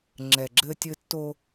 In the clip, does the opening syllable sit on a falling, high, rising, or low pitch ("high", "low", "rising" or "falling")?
low